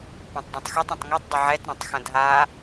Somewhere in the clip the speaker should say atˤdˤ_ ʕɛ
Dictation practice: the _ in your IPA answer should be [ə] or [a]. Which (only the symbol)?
ə